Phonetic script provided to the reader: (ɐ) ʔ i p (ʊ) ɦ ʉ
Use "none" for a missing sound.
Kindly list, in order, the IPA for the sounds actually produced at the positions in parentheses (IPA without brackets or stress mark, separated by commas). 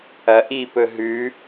ɐ, ɵ